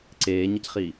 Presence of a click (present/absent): present